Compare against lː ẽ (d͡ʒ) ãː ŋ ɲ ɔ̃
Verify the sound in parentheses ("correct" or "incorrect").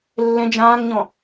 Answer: correct